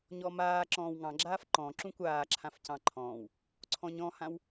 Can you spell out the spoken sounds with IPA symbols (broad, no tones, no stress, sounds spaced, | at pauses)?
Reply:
ɲ ɔ m aː ǁ ɔ̃ː w ŋ ɑ̃ ɡ͡ǁ aː f ǃ ɔ̃ ǁ ũ kʷ aː ǁʰ ã f c ɑ̃ ǃʰ ɔ̃ː w | ǀʰ ɔ̃ ɲ ɔ̃ h ã w